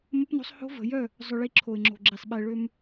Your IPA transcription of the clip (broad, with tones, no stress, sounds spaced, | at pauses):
m ɐ˦ p n o̤˦ sˤ h o̤˦ v ə̤˨ j œ˦˨ | zˤ ʊ˨ ɭ i˨ ǁʰ o˨ ɪ̯ ŋ͡ǁ o̤˨ ɡ͡ǁ i˨ sˤ ɓ ɛ˨ ɭ ø˦ m